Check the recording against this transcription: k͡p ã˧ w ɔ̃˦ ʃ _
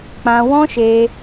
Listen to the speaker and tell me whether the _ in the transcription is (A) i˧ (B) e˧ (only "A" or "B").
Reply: B